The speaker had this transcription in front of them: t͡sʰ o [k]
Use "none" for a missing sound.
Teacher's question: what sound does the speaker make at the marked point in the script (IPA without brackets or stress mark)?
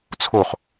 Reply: χ